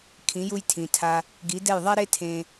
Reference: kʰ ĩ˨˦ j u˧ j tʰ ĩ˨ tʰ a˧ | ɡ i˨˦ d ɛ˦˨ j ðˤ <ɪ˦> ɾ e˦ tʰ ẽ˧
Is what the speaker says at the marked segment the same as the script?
no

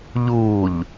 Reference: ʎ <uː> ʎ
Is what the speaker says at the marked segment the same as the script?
yes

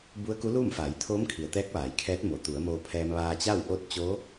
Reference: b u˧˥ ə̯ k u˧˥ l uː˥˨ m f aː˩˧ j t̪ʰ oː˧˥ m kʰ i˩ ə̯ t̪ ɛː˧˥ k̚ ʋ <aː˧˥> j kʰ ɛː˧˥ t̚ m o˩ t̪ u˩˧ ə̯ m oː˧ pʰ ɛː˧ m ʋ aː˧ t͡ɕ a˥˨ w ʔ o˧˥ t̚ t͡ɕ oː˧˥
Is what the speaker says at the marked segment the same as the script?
no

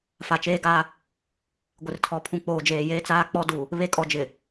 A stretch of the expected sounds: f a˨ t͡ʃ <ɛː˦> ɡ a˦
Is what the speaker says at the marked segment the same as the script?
no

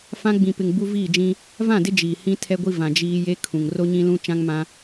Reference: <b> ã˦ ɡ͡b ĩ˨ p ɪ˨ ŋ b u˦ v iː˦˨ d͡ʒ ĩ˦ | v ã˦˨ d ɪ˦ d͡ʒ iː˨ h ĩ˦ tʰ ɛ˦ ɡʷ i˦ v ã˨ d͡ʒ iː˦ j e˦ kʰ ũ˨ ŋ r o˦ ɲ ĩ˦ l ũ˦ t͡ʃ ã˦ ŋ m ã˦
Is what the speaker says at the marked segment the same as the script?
no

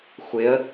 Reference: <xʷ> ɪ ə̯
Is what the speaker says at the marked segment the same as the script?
yes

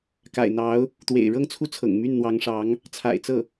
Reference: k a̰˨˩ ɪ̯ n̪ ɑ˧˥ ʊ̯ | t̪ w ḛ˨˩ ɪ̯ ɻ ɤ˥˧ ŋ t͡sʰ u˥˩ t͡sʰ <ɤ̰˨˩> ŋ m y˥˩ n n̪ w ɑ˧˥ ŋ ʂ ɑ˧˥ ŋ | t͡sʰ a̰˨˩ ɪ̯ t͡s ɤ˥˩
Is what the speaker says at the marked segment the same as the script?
yes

